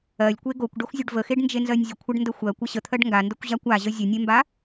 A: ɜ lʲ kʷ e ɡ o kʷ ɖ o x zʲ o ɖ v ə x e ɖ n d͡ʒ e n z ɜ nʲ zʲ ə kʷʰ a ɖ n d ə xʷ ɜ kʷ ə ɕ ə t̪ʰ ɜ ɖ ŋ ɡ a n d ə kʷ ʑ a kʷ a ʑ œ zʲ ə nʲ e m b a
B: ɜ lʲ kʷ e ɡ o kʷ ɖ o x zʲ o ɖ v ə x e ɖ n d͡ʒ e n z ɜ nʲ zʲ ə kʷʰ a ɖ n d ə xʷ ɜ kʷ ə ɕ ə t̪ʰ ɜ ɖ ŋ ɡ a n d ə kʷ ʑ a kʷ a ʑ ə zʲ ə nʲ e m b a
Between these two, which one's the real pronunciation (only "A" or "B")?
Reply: B